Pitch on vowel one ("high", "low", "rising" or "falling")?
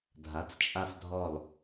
rising